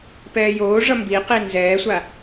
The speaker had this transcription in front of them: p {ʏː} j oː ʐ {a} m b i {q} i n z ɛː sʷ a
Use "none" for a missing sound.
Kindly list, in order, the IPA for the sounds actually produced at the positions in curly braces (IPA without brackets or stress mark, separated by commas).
ɛː, ʌ, q